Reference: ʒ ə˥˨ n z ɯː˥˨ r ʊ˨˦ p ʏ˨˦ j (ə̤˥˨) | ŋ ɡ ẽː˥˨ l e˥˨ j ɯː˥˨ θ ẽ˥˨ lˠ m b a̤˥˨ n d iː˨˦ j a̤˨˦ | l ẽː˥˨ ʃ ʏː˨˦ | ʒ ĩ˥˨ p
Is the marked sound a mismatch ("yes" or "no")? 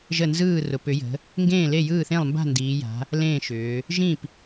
yes